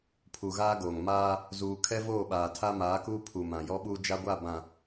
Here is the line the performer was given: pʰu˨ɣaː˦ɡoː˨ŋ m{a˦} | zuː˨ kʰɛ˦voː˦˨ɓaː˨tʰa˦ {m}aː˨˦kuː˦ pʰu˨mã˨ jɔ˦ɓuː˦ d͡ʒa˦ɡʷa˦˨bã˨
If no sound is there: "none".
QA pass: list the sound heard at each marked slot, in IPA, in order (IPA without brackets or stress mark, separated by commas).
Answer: aː˦, m